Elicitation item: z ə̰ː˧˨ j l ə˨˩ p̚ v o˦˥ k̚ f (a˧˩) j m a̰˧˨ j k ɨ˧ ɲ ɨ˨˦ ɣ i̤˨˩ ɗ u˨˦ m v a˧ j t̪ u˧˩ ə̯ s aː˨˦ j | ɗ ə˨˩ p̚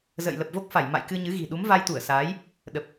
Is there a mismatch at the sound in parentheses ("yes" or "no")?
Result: no